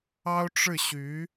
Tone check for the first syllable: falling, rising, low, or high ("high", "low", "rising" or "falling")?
high